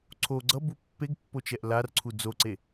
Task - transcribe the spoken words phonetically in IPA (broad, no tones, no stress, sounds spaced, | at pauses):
ǀʰ o ɡ͡ǀ ʌ b u pː e ɡ pː o t͡ʃ ɛ ʔ l a r ǀʰ u d͡z o ǀ e